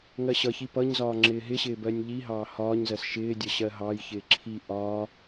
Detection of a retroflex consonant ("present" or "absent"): absent